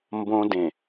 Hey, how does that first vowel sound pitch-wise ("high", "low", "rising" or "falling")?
high